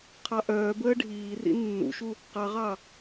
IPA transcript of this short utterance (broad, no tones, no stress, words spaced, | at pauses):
qʰɑʔœːbəː ɖʱiːrḭ nːṵʃu | qɑʁɑ